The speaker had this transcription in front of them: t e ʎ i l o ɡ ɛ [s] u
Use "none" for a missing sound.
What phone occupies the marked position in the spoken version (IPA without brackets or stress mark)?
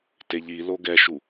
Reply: ʃ